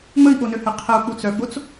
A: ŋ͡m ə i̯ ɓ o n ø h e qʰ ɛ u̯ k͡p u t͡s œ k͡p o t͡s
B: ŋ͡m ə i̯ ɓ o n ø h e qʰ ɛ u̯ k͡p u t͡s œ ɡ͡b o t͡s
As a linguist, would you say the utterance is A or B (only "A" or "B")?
B